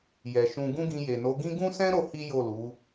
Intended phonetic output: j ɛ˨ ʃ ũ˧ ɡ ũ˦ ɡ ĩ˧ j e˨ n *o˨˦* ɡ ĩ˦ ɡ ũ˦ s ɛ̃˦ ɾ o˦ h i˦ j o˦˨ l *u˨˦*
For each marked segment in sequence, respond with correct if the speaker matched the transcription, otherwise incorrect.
correct, correct

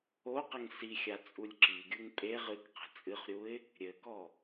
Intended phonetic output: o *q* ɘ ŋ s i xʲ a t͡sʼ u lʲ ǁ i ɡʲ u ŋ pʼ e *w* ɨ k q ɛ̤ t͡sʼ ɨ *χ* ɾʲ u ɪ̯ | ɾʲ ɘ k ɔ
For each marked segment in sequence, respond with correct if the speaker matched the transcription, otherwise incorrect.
correct, incorrect, correct

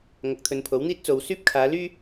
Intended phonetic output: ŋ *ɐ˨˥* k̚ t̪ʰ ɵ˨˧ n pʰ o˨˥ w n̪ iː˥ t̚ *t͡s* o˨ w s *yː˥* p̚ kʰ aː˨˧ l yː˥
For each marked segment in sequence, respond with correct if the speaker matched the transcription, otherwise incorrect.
correct, correct, correct

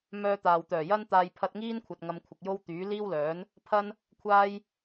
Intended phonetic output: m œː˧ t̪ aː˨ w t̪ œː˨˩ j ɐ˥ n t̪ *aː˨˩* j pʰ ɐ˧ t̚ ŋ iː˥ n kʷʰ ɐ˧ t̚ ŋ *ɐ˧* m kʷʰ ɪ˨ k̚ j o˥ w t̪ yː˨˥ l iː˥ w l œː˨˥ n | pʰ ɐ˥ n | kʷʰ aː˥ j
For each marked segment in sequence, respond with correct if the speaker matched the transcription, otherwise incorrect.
incorrect, correct

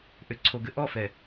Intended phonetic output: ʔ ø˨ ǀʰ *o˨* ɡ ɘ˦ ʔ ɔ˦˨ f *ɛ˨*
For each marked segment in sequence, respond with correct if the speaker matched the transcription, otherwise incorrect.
correct, correct

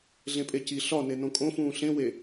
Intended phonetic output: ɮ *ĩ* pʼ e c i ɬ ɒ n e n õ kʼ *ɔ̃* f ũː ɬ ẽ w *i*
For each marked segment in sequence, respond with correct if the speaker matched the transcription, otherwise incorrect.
incorrect, incorrect, incorrect

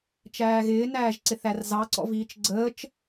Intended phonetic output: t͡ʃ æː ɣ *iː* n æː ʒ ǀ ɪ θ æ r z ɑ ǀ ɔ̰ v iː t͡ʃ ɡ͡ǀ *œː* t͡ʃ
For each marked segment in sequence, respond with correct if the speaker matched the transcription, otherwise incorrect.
incorrect, incorrect

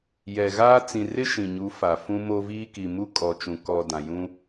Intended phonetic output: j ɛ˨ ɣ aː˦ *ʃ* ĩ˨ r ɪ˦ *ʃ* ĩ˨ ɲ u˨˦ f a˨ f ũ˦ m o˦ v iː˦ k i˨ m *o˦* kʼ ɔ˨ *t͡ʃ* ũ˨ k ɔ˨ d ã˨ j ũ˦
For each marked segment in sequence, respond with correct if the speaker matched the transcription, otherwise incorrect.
incorrect, correct, incorrect, correct

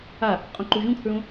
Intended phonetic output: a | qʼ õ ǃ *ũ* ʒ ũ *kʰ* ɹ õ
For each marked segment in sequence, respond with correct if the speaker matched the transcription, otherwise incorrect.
incorrect, correct

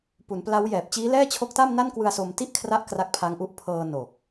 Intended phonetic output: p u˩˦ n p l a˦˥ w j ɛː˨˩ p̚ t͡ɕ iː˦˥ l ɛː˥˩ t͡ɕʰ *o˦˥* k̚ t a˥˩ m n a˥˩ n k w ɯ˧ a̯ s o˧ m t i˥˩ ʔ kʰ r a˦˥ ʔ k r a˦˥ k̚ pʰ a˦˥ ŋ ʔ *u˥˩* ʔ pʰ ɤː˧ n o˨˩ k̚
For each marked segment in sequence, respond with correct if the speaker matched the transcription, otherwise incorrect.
correct, incorrect

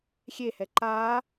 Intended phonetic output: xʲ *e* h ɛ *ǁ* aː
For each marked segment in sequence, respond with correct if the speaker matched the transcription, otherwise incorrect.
correct, incorrect

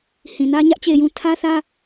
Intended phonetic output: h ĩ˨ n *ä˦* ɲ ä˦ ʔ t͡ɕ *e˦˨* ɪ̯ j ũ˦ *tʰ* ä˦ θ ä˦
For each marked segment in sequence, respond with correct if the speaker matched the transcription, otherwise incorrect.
correct, correct, correct

